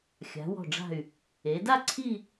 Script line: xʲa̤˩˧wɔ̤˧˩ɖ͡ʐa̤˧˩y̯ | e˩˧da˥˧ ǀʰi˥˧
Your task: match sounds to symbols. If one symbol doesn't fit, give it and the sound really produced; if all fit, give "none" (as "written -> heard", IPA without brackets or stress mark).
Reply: none